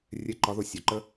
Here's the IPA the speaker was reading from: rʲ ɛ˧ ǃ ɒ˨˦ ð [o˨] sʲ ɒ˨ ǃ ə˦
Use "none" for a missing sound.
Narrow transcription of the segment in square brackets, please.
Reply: o˨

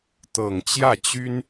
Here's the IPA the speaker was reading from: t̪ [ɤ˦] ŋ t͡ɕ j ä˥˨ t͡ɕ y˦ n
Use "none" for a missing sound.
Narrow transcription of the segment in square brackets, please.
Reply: ɤ˨˩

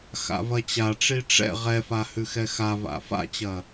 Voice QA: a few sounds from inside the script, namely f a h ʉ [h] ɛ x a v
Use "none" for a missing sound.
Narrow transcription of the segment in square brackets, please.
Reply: x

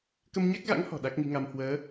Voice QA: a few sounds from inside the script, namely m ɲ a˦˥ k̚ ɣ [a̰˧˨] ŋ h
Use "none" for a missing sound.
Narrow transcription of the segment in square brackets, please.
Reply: a̰˧˥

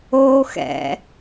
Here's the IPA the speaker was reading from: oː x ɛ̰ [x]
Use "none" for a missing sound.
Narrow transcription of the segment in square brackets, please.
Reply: none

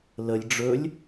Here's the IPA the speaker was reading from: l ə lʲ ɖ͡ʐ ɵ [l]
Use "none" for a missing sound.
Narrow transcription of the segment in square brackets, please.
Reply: lʲ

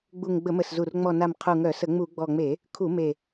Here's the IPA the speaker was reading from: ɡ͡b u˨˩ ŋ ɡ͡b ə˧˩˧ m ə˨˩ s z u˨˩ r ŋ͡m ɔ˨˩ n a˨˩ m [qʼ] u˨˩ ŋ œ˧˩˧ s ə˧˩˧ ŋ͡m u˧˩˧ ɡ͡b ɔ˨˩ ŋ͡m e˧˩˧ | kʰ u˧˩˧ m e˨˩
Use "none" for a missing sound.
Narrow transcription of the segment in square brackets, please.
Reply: qʰ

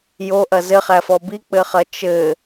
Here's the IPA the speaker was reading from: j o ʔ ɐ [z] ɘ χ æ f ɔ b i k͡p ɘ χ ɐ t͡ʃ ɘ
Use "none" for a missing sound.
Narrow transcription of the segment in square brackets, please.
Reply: z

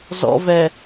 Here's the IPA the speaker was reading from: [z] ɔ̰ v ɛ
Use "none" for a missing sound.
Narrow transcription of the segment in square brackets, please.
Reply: z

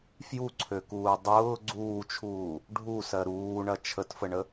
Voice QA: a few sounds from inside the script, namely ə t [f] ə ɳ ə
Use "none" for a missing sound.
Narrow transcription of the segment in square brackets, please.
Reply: f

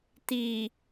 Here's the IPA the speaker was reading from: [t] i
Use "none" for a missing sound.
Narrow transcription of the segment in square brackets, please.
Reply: t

